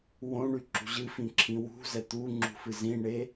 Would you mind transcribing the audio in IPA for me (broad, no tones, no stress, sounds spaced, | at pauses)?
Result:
w õ ɳ y ǁ ṳ ʑ ɨ f ĩ ǁʰ ĩ w ṳ z ɛ t̪ u ŋ͡ǁ ṳ f ɨ z ĩ ɳ e